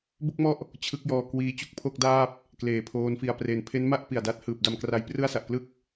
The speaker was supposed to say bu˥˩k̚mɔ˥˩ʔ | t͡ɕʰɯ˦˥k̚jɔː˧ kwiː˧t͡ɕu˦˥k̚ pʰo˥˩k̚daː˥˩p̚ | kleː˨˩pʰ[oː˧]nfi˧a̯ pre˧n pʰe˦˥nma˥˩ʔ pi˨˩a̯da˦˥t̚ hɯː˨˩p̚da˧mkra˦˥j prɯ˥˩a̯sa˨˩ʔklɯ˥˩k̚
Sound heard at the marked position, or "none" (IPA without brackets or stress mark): oː˦˥